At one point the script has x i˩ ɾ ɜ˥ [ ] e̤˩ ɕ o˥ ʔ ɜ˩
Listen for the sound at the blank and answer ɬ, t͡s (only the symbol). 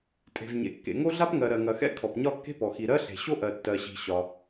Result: ɬ